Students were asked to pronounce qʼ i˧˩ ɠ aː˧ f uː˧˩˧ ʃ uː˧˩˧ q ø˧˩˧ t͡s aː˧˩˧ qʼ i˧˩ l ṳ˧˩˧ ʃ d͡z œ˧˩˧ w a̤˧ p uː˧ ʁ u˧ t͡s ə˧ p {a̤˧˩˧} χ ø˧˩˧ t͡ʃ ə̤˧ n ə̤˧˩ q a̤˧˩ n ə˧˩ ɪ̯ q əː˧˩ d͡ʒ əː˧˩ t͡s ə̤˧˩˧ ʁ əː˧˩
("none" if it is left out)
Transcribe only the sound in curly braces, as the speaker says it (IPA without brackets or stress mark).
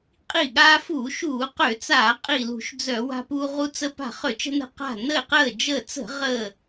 a̤˧˩